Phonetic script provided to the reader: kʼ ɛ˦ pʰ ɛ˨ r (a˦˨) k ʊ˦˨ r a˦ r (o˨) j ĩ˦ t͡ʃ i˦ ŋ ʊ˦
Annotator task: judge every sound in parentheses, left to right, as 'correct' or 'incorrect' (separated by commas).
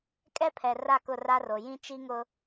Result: correct, correct